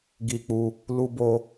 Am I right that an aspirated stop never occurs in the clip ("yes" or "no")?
yes